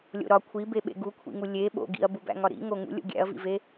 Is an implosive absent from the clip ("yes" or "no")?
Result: no